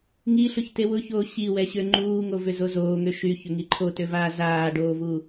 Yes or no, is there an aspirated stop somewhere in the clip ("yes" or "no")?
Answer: yes